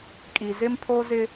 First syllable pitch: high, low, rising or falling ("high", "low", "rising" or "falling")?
low